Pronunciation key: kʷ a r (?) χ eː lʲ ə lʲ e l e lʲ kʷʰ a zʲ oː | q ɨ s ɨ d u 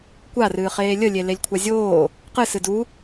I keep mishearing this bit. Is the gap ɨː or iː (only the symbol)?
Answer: ɨː